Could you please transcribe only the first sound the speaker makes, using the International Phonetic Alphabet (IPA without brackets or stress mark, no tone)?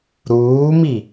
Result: ɾ